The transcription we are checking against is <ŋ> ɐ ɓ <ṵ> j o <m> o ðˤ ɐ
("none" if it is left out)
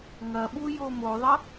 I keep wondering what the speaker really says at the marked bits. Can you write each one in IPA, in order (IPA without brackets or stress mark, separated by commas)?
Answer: ŋ, u, m